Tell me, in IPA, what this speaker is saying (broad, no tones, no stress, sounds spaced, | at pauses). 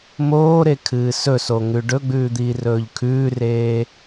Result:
m oː ɾ e kʰ ɨː s ɵ s o ŋ ʉ ɖ ɵ ɡ͡b ʉː d̪ iː r ɵː ʎ kʰ ʉː r eː